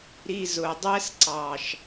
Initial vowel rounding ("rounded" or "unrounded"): unrounded